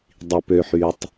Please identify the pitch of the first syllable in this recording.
low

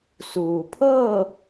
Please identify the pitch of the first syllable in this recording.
low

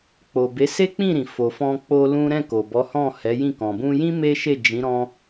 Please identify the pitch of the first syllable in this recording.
low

